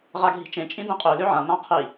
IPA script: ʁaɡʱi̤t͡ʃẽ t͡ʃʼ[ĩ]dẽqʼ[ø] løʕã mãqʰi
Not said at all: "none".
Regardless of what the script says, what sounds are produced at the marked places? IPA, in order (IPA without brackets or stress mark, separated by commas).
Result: ĩ, ø